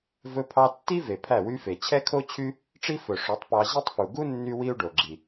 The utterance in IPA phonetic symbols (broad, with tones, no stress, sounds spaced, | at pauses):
v ɵ˧ pʰ ɑ˧ tː i˦ v e˨ pʰ æ˦˨ w y˦ f e˨ t͡ɕʰ ɛ˦ kʰ o˦ t͡ɕʰ y˦ | ʈ͡ʂ i˦ f ɵ˨ ʂ o˨˦ tˤ p ɑ˧ ʑ e˦ tˤ f u˨ ɡ u˦ nː y˦ w i˦ u̯ ɖ o˨ ɡ͡ǁ i˨